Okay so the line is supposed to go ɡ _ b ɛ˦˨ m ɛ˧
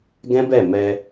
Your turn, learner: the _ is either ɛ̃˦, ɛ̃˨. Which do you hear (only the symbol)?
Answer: ɛ̃˦